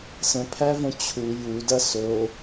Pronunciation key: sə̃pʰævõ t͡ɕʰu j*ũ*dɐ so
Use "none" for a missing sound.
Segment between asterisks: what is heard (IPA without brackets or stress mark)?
u